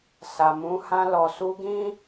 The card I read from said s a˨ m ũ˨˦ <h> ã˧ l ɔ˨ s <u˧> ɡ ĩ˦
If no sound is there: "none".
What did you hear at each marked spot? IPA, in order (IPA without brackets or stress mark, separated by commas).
h, u˧